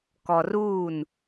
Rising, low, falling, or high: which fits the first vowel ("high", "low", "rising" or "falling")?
low